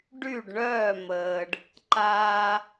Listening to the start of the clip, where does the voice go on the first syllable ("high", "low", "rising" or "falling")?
falling